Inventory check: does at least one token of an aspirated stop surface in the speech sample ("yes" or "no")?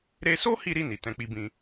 no